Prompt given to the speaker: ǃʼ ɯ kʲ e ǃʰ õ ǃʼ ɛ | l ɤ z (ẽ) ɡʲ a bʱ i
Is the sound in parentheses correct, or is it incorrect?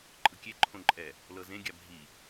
correct